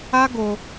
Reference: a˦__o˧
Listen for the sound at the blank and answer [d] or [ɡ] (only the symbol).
ɡ